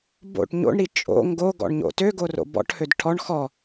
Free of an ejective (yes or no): no